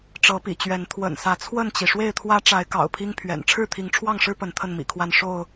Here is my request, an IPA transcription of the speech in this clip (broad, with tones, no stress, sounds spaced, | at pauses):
ʈ͡ʂ ɤ˨˦ p ḭ˨˩ t͡ɕ ɥ ɛ˨˦ n t̪ʰ w ə̰˨˩ n s ä˨˦ t͡sʰ w ə˥˨ n t͡ɕ i˩ ʂ w e˥˨ ɪ̯ t̪ʰ w ä˦ ʈ͡ʂ a˨˦ ɪ̯ k ɑ̰˨˩ ʊ̯ pʰ i˦ ŋ pʰ ɥ ɛ̰˨˩ n ʈ͡ʂʰ ɻ̩˥˨ t̪ʰ i˨˦ ŋ ʈ͡ʂʰ w ɑ˥˨ ŋ ʂ ɻ̩˦ p ə˨˦ n t̪ʰ ə˥˨ n m ḭ˨˩ kʰ w a˥˨ n ʂ o˥˨ ʊ̯